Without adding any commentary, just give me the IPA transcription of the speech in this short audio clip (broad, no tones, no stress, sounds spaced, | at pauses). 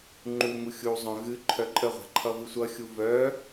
ŋ͡ǃ u ŋ u xʲ u zˤ œ̃ ɣ ɨ ǃʰ œ ǃʼ ə ʁʷ a̤ ǃʰ ʌ v ɨ sʷ ʌ xʲ u v œ